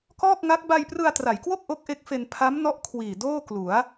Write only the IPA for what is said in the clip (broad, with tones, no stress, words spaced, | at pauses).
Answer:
kɔː˥˩k̚ŋa˦˥k̚ ba˧jprɯ˧a̯tra˩˦jkwo˥˩k̚ ʔo˦˥k̚ʔe˦˥k̚fe˧n pʰa˦˥mnɔ˦˥ʔ kʰwiː˨˩ doː˥˩klu˩˦a̯